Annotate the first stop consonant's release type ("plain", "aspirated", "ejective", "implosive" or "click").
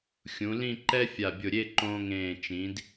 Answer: click